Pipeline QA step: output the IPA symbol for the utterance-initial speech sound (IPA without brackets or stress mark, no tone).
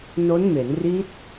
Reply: n